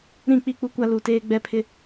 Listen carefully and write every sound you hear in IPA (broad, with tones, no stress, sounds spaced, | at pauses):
ɾ ĩ˦˨ k͡p i˦˨ k͡p u˦ kʷ a˦ l u˨ t eː˦ ɡ͡b ɛ˦ pʰ ɪ˦